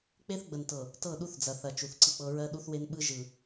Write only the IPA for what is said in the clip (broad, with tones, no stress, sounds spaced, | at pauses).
k͡p e˦ θ ɡ͡b ə˨ n t ɤ˨ | t ɤ˦˨ ɗ u˦ θ d͡z ɐ˨ θ ɐ˨ t͡ʃ u˨ θ ǀ ɯ˦ k͡p ɤ˦ ɹ ɜ˦ ɗ u˦ θ w e˦ n ɓ ɯ˦ ʒ ɯ˨